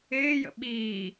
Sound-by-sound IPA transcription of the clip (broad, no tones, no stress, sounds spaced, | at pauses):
ɪː j ə̰ ɓ iː